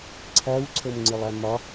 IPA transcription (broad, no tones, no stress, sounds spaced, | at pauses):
ǀʰ æ w ǀʰ ɤ m ŋ͡ǀ ɨ lˠ æ m ɒ